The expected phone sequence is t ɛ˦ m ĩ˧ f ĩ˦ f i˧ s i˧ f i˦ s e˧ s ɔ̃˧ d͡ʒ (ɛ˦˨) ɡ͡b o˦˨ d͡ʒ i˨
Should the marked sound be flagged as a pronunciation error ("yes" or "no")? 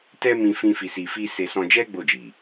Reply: yes